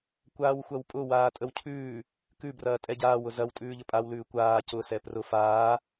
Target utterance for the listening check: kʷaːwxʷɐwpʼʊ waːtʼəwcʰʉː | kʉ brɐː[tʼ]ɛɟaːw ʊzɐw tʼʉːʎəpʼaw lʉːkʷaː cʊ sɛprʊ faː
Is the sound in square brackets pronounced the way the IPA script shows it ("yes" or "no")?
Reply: yes